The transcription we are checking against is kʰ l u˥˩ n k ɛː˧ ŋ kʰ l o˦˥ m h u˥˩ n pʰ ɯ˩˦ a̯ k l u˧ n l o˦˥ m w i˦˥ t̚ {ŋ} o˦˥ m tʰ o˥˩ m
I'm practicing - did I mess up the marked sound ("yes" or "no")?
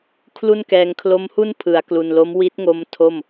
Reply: no